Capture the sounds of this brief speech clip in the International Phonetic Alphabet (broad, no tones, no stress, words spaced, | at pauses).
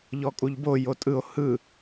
ʎɔkʼuʎbo jotʼɯo̯ hɯ